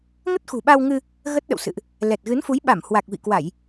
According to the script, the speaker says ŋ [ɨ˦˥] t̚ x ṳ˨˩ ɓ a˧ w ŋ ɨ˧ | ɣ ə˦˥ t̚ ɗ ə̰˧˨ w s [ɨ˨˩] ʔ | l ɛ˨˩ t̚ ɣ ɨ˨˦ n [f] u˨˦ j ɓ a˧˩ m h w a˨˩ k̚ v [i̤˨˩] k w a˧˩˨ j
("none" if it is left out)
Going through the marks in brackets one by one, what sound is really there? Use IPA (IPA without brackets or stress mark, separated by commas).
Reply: ə˦˥, ɨ̰˧˨, f, ḭ˧˨